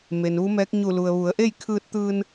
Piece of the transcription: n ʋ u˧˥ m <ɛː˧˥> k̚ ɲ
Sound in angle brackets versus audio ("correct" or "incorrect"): correct